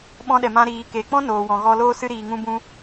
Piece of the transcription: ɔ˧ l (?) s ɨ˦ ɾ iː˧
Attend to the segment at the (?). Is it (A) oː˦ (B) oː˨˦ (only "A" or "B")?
A